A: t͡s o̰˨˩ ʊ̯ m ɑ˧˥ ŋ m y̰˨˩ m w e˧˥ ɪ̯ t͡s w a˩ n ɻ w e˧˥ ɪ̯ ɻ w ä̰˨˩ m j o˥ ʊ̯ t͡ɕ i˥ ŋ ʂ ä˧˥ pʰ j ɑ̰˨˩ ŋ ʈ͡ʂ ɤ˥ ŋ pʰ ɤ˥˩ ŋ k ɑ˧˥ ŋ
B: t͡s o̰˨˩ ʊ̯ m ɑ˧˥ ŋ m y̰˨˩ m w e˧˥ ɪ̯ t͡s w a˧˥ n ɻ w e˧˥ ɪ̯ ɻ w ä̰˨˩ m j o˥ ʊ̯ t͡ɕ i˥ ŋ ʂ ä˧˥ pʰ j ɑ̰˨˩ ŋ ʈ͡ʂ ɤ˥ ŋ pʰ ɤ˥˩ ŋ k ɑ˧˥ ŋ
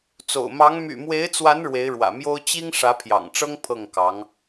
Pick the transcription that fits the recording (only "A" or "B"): B